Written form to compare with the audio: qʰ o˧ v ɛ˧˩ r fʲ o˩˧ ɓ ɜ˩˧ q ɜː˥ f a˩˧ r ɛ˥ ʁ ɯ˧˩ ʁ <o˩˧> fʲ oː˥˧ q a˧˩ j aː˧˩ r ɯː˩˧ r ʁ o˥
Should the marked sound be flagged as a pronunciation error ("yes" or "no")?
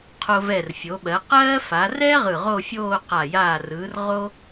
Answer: yes